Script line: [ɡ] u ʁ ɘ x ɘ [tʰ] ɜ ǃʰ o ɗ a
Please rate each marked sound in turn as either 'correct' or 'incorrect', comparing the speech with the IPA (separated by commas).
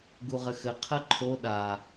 correct, incorrect